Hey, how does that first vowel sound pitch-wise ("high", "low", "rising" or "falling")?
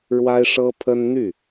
high